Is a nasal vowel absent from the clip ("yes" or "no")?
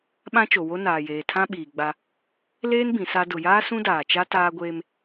no